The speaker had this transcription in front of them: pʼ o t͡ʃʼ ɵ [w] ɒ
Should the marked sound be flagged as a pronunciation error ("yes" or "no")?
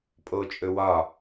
no